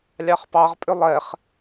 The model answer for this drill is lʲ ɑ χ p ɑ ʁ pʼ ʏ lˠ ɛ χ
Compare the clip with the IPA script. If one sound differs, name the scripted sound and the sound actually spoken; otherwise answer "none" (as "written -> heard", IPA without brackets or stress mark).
none